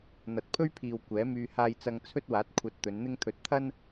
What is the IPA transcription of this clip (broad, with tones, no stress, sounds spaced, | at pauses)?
n̪ ɐ˨ t̚ pʰ ɵ˥ ɥ pʰ iː˨ w kʷ ɛː˨˥ m yː˧ h aː˧ j t͡s ɐ˧ ŋ t͡sʰ ɵ˥ t̚ w aː˨˥ t̚ kʷʰ ɐ˧ t̚ t̪ ɵ˨˧ n n̪ ɪ˥ ŋ t̪ʰ ɵ˧ t̚ t̪ʰ ɐ˥ n